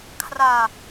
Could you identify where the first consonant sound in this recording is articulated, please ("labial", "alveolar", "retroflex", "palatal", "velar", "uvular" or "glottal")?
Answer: velar